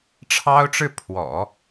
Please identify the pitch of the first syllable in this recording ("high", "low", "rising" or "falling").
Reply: high